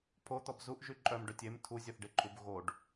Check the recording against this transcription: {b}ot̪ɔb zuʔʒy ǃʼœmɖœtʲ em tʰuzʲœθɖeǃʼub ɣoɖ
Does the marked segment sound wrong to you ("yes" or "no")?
yes